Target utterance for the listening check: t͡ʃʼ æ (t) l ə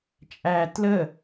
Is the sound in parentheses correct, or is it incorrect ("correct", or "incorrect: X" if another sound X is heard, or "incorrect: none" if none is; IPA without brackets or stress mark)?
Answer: correct